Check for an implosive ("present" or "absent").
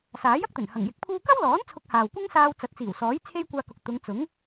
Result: absent